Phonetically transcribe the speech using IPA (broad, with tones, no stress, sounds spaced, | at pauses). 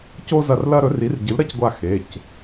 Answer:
c o˥ z ɐ˦˨ r l ɐ˥ ɾ ɵ˨˥ r i˨˥ r ɟ ɨ˨˥ l ɾ ɐ˥ c ɡʷ a˦˨ x e˩˧˩ c